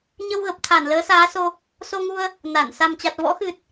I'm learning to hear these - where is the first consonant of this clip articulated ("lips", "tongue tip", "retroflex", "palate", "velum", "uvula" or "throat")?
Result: palate